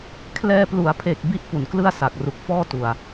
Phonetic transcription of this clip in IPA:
kʰ l ɛː˧ p l u˩˦ a̯ pʰ e˨˩ k̚ b i˥˩ ʔ p u˨˩ n k l ɯ˥˩ a̯ s a˨˩ k̚ r u˨˩ k̚ f ɔː˥˩ t u˨˩ a̯

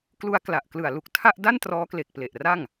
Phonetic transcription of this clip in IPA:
k l u˧ a̯ k l a˨˩ ʔ k l ɯ˨˩ a̯ l u˦˥ k̚ tʰ a˥˩ ʔ d a˥˩ n t r ɔː˦˥ k l e˨˩ k̚ p l e˨˩ ʔ r a˥˩ ŋ

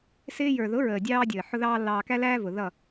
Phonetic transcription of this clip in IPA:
s ɪː˦ j ə˞˨ ð ʊ˨˦ ɹ əː˨ dʲ ɑː˧ dʲ əː˨ ħ ʊ˦ ð ɑː˦ lː ɑː˧ k æ˦ l æː˦ v ʊ˨ ð ʌ˦˨

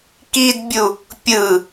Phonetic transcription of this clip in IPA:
k i d bʲ u | pʲ ɯ

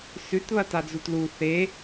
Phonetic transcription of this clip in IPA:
s ʉ t β ɐ t a d͡z u t l u θ e

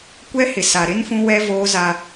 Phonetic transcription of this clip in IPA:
kʷ ɛ˦ h ɪ˨ s a˨ ɾ ɪ˦ n f ũ˦ w ɛ˦ v oː˦ z a˦

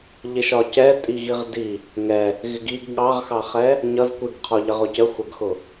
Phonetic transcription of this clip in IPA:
ʎ ɪ ʃ ɒ c ɛ tʼ i ɣ i ʁ d i | ŋ ɛ | ɣ ɪ ɡ i ɡ ɠ ɑ ʁ x ɑ χ ɛ | ɲ ʌ z kʷ i ɡ qʰ ɔ ʎ ə ʁ ʊ c ə xʷ ʌ ɡ x ʊ

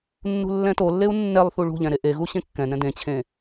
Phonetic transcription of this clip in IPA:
nː ṳ lː ɛ̃ t o lː e u̯ nː ɛ lˠ θ u ɭ ṳ ʎ ɛ̃ ɾ e ʔ e ɣ u ɕ ẽ kː ɛ̃ n ɛ̃ d ẽ t͡ɕʰ ẽ

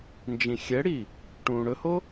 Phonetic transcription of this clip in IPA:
n d͡ʒ ĩ xʲ ɛ ɽ i | ʈ ũː ɽ ɵ h o

